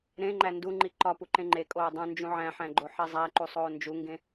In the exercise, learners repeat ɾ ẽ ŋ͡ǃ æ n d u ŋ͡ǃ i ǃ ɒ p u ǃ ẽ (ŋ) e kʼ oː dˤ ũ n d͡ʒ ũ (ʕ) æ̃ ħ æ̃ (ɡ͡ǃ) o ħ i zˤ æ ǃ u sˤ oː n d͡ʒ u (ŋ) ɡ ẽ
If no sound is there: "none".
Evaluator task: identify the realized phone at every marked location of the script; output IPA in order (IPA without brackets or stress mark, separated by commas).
ŋ͡ǃ, ʕ, ɡ͡ǃ, ŋ